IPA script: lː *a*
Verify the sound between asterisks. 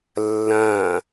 incorrect: ã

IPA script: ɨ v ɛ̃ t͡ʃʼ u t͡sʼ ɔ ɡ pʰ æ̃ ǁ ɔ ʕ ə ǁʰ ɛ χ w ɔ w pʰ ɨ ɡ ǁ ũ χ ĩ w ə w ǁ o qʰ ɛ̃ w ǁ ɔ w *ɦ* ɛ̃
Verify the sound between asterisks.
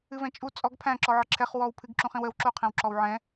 incorrect: ʕ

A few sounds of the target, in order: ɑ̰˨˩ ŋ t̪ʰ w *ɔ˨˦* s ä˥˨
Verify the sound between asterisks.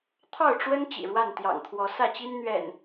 correct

